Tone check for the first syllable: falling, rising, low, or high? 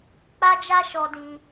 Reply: high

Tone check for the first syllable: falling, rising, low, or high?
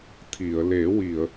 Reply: low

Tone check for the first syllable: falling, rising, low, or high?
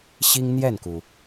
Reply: high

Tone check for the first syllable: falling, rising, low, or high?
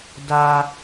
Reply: high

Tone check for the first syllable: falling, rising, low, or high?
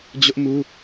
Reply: high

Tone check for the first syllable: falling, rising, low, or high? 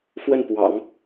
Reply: falling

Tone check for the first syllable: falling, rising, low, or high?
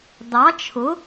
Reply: rising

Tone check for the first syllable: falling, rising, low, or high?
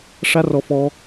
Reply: high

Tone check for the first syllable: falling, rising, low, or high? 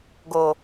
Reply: low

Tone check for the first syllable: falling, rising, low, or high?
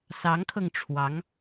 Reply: rising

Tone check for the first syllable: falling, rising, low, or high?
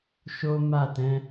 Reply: high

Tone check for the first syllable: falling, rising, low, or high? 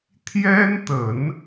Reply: high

